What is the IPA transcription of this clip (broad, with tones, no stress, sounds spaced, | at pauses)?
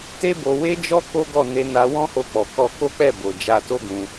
t e˦ b o˧ w e˦ d͡ʒ ɔ˦ k o˦ ɡ ɔ˦˨ n e˧ n a˧ w ɔ̃˦ h o˧ k͡p ɔ˨ k ɔ˧ k o˦ k͡p ɛ˦˨ b o˨ d͡ʒ a˧ t o˦ ɡ ũ˧